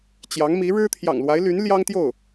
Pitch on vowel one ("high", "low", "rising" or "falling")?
rising